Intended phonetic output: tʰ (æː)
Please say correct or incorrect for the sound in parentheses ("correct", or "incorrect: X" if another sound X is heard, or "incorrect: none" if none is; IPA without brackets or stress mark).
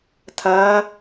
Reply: incorrect: ɐː